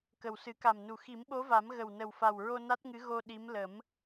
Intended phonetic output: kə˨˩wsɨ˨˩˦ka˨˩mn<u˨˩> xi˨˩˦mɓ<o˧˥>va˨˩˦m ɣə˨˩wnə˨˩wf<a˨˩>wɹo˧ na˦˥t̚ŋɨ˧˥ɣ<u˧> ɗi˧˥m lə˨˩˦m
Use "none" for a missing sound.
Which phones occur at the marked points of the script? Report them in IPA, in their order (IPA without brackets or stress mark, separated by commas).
u˨˩, o˧˥, a˨˩, o˧